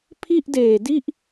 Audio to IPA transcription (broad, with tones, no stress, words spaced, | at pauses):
pʰi˥˩ʔdeː˨˩di˥˩ʔ